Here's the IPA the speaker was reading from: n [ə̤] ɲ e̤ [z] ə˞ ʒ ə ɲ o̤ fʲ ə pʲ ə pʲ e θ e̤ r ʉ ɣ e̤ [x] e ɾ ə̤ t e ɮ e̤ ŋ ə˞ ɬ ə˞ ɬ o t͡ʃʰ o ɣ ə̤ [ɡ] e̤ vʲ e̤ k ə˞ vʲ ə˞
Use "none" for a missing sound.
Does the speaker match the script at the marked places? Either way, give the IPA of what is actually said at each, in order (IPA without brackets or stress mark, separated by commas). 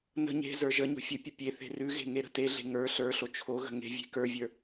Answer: ə̤, z, ŋ, ŋ